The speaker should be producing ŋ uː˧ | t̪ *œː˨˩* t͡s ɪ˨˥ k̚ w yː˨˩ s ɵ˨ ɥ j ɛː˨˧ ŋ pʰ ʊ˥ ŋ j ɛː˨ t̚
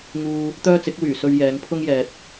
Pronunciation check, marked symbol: incorrect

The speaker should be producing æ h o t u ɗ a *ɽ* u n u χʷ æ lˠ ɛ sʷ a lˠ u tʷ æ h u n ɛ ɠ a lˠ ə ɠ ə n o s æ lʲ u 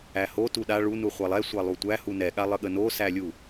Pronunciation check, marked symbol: incorrect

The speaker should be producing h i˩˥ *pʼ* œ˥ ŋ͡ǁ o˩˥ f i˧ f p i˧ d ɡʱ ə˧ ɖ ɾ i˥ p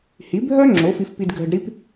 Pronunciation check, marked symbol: incorrect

